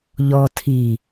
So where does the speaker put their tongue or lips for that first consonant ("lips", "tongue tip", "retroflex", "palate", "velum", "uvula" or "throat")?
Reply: palate